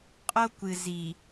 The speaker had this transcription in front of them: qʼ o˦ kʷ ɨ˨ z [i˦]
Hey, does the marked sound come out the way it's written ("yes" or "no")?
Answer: no